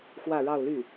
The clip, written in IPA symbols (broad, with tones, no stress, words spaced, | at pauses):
xwä˥˧ɻɑ˥˧ʊ̯ly˥˩